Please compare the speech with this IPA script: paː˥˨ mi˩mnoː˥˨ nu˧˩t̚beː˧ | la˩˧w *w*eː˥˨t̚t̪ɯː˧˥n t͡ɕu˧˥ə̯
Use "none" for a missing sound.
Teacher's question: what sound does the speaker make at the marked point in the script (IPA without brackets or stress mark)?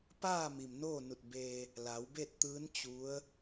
b